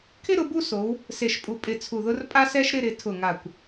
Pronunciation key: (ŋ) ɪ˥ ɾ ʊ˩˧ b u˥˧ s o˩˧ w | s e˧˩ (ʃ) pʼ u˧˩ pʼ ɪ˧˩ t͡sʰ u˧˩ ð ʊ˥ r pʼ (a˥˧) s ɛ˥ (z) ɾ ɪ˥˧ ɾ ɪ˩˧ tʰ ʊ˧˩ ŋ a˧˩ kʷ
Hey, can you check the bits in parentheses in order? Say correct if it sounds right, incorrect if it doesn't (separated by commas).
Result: incorrect, correct, incorrect, incorrect